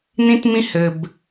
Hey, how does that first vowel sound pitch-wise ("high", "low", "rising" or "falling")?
high